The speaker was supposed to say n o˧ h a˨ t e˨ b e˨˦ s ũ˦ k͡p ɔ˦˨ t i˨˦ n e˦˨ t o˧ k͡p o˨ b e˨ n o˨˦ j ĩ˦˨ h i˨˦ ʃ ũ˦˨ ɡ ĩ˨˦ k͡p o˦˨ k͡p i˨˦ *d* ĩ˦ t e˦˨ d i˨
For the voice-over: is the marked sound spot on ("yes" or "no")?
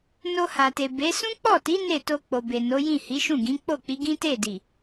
no